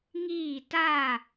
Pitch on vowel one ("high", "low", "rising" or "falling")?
falling